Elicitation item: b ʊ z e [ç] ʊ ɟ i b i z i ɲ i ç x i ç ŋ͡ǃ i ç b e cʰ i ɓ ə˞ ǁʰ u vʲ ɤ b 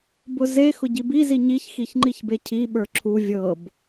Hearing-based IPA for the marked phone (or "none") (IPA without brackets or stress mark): x